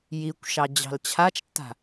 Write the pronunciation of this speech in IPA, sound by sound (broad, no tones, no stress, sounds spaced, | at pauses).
j i kʷ ʃ ɑ d͡ʑ ɑ̤ l t͡ɕʰ a t͡ʃ tː a̤